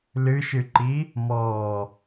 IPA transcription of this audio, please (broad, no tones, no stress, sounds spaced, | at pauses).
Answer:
l ɨ ʃ ɨ ǃ i | m ɔ